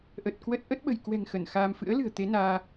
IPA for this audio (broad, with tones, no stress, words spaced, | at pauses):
ʔə˨˩t̚kwə˦˥t̚ ʔə˦˥t̚ɓə̤˨˩jkwɛ̤˨˩ŋ xə˧˩nxaː˧m fɨ̰˧˥ə̯lɨ̤˨˩ə̯ t̪e˨˦naː˧